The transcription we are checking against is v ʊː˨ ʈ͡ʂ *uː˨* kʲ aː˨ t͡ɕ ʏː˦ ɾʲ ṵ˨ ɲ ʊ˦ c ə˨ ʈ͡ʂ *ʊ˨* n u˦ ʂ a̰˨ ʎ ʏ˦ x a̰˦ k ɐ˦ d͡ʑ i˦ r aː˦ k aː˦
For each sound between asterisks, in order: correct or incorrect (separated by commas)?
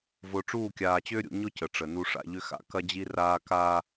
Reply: incorrect, incorrect